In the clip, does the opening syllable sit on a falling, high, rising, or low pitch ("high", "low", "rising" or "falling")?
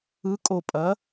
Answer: rising